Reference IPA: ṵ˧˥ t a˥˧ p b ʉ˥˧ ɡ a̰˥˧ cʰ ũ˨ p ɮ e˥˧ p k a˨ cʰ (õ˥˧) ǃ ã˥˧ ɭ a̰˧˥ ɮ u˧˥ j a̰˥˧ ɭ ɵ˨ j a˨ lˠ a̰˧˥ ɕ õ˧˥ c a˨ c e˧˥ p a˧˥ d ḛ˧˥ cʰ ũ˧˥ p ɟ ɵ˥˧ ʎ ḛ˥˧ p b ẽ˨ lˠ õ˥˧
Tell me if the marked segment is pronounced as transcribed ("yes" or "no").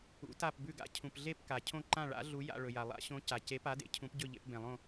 yes